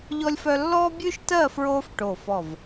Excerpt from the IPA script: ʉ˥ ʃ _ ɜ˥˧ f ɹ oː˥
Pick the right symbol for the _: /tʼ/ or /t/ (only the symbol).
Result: t